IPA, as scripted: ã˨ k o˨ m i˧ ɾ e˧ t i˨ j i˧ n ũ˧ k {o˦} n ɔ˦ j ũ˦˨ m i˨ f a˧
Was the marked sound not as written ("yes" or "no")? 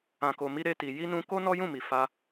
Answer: no